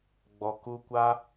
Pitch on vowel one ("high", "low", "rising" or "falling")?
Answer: low